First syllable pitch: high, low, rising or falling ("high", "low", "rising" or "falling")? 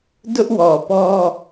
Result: high